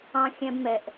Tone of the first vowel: high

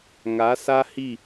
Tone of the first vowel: rising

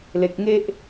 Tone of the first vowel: high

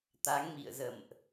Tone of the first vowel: rising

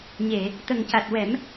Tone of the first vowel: low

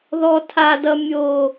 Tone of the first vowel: high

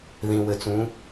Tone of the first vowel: low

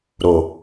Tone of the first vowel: low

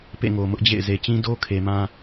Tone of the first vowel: falling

